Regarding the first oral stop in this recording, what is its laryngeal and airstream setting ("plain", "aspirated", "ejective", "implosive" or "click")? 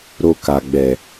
plain